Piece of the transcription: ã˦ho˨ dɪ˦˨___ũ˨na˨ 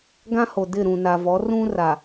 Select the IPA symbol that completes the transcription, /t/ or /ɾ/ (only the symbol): ɾ